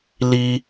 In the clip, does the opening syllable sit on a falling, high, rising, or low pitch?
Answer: high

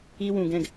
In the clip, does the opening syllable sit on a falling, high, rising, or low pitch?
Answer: high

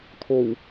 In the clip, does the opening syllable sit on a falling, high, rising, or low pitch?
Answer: low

